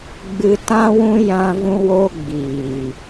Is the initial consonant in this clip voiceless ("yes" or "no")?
no